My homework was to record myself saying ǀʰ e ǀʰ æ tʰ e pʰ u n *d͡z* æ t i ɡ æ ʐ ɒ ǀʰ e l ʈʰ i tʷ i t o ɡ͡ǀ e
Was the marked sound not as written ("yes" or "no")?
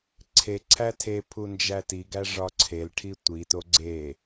yes